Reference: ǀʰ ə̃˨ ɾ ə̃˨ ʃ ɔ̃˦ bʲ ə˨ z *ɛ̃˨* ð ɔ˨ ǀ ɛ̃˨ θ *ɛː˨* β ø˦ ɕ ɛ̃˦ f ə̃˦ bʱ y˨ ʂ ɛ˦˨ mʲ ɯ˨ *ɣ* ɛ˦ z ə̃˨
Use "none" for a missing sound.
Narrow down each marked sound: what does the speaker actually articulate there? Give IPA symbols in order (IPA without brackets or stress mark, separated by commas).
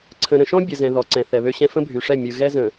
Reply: ɛ̃˨, ɛ˨, ɣ